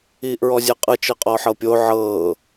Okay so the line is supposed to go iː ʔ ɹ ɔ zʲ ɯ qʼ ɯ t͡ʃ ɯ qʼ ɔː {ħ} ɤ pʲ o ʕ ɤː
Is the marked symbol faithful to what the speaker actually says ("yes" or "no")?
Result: yes